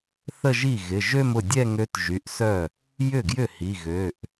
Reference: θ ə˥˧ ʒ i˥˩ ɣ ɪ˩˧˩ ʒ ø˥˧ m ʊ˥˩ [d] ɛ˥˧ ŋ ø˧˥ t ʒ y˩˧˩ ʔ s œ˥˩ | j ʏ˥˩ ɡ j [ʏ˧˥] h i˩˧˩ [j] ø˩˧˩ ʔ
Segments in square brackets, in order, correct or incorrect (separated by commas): incorrect, incorrect, incorrect